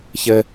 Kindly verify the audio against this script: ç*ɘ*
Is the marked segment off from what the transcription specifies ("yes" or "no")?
no